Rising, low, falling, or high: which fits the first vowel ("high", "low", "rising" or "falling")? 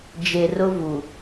low